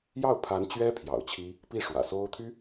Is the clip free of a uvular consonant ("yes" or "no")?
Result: yes